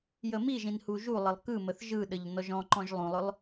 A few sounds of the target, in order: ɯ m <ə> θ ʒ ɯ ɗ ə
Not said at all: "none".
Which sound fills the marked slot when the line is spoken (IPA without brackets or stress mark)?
ə